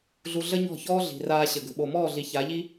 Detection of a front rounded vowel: absent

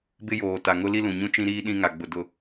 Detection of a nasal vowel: present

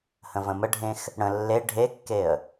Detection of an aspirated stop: absent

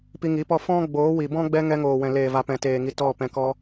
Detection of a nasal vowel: present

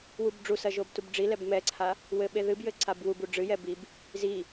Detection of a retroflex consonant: present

